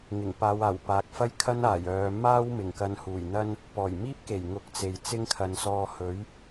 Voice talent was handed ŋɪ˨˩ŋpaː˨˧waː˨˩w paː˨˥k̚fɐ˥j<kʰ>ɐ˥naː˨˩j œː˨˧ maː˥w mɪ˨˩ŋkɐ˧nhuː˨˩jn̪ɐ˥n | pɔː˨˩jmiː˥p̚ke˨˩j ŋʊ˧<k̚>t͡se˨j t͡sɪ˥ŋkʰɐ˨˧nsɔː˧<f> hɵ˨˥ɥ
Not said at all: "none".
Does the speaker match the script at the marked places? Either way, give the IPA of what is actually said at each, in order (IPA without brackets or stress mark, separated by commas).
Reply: kʰ, k̚, none